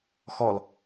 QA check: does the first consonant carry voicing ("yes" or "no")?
no